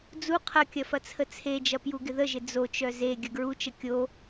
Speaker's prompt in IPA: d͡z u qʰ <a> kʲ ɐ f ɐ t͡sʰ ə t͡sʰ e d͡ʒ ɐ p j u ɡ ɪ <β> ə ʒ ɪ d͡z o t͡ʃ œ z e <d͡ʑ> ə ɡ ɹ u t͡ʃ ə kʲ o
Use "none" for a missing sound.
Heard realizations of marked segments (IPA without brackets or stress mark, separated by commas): ɐ, ð, ɡʲ